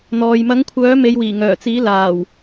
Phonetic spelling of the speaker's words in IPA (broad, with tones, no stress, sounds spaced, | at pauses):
n̪ ɔː˨ j m ɐ˨˥ ŋ kʷʰ œː˨˥ m e˨˧ j w iː˨˩ ŋ œː˨˩ t͡s iː˨˥ l aː˨˩ w